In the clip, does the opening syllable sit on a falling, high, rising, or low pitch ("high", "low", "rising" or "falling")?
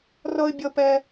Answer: high